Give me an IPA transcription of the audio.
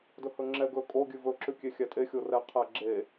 dɵhɵŋ͡ǁɛ ɡɵ kʼo ɡʲʉvɵǁʉ kʲexʲætʼe xʲorɛ qʰæ ɡ͡ǁe

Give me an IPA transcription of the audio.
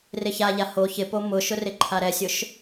rɪçaʎa ho çɪpo mʊʃʊ rɪǃʰaɾɛsʲʊʃ

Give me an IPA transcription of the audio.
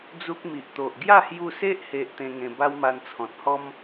d͡zu˦k̚mi˨ʔ t̪o˨ʔ ɡja˥˧hju˧se˦ʔ he˦ʔt̪ẽ˦ ŋẽ˧ ba˦wma˧nt͡sʰɔ̃˨t̚hɔ˦m

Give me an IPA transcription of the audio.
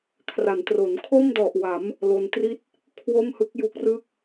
kʰra˩˦ntro˩˦n kʰo˥˩mdɔ˨˩ʔwa˩˦m | lo˧ntri˥˩t̚ | kʰwo˥˩mhɯ˦˥k̚ju˦˥k̚rɯ˥˩k̚

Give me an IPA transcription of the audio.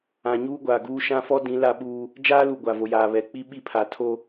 ã˨ ɲuː˦ɡʷaː˨ɡuː˦ ʃã˦fɔ˦dĩ˨˦ la˦ɓuː˦ | d͡ʒaː˦lu˨ ɡʷa˨vo˨jaː˨ βɛ˨k͡pi˦ ɓi˦pʰa˨tʰo˦

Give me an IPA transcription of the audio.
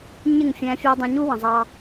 ɲɪ˦˨ŋfʲæ̃˧ fʲɛː˧dˤɑ̃˧ ɲu˦wə̃˨ zˤɑ˦

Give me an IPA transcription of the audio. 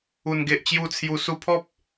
u˨˩nɡe˨ʔt͡ɕju˧t͡sʰju˨˩ su˧pʰɔ˦p̚

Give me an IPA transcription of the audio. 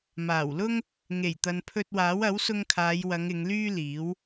maː˨˩wlʊ˥ŋ | ŋe˨˩jt̪ɐ˨npʰɵ˧t̚waː˨˥w ɐ˨˥wsʊ˧ŋkʰaː˨˧jwɐ˨˧ŋ ɪ˨˧ŋlyː˥liː˨˥w

